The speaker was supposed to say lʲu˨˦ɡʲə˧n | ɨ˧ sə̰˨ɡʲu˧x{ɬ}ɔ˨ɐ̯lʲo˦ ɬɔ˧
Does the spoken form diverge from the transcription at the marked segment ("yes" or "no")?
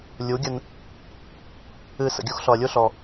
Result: no